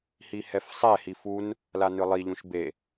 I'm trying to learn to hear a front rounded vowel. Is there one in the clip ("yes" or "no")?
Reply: no